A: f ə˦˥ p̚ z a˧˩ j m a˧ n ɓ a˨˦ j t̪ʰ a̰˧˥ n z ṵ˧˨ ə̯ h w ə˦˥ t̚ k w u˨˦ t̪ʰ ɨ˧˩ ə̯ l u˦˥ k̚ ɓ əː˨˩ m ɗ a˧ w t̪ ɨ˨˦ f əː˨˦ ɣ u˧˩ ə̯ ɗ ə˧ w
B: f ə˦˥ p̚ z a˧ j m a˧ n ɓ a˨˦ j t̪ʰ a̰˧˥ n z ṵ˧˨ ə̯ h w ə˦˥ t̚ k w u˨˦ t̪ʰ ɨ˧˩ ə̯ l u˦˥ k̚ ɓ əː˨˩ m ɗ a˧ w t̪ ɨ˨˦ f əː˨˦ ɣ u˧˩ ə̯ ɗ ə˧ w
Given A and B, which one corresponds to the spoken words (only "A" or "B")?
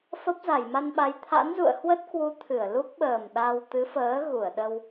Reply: A